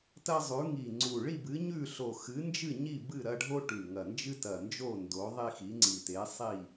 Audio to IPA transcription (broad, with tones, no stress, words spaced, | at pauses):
tɐ˦zˤʉ˨˦ ŋi˨˩ŋ͡ǀu˨˩ ɭi˦˨bɨ˨˦ɲʉ˦˨ɬo˨˩ xɨ˨˦nd͡ʒɨ˦˨ɲi˦˨ bɨ˦˨ɾɐ˦ɖʱo˦ ʈʉ˨˩ŋɐ˨˩nd͡ʒɨ˦ tɐ˨˩nd͡ʒo˦˨ ndo˨˦ðˤi˦xi˨˦ ŋ͡ǀi˨˩te˨˦sˤi˦˨